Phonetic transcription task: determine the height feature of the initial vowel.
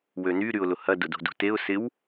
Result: mid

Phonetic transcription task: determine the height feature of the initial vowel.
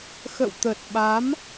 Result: mid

